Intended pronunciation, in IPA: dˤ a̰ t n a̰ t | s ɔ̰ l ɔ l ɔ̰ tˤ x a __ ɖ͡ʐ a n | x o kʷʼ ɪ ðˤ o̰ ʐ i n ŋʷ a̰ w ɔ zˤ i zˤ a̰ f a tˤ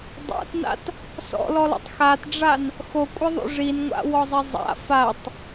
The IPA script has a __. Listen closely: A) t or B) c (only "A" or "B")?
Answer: A